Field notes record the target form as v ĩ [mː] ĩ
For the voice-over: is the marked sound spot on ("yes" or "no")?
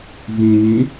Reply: no